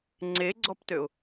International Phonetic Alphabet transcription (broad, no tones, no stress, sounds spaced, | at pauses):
ŋ͡ǀ e ɡ͡ǀ ɔ p t ø ʊ̯